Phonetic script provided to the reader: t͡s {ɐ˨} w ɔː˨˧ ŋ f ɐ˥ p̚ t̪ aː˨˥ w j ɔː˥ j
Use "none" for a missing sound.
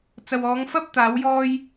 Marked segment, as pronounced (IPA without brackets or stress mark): ɐ˨